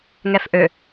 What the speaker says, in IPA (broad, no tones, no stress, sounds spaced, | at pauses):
ŋ ɛ f ʔ ø